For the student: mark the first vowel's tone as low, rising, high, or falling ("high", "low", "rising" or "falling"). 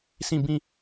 falling